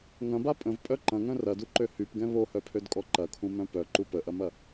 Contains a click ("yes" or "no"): yes